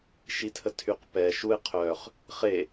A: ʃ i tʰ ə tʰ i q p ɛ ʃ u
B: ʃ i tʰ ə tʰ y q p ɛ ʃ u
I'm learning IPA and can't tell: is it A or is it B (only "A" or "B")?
B